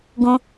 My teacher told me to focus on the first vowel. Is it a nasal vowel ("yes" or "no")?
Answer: yes